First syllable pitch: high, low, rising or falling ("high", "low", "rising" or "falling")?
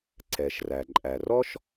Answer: low